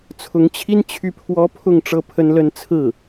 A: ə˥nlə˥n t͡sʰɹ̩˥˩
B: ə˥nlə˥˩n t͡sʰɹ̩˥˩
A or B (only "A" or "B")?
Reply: A